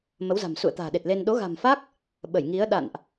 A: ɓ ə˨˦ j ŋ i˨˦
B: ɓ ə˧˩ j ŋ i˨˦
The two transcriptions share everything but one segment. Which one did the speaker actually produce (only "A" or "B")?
B